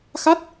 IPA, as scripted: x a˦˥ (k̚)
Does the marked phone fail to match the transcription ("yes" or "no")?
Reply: yes